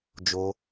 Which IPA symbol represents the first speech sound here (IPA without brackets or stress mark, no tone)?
d͡ʒ